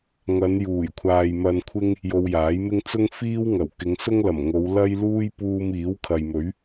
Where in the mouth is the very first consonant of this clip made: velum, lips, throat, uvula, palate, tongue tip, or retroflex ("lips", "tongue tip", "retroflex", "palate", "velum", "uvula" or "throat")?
velum